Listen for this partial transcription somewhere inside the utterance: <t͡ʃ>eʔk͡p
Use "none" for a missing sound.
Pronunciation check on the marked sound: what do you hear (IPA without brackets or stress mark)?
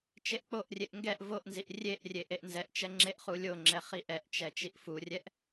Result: t͡ʃ